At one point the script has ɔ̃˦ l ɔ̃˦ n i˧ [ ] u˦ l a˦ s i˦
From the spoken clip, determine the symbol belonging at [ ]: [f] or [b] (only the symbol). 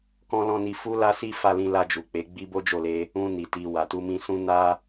f